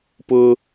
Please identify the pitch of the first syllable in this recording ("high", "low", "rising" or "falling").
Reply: high